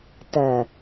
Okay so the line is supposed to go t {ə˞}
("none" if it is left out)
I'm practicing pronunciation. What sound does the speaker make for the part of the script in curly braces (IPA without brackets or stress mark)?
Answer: ɜ